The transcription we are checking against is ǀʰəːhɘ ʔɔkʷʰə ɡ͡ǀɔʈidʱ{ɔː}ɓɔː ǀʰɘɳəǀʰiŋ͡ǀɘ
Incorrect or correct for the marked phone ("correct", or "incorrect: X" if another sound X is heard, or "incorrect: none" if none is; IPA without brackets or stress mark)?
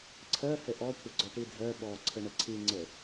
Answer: incorrect: əː